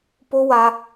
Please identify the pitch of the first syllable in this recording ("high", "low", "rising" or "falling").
high